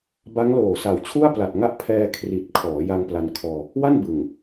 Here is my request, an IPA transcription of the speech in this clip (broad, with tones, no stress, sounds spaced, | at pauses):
b a˦˥ ŋ l oː˨˩ s a˨˩ w t͡ɕʰ u˥˩ a̯ p l a˨˩ t̚ ŋ a˥˩ ʔ pʰ ɛː˧ kʰ r i˨˩ t̚ kʰ ɔː˩˦ j a˧ ŋ p l a˧ n kʰ ɔː˧ | w a˥˩ n b ɯ˨˩ ŋ